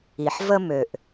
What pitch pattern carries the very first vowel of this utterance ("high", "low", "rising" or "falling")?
low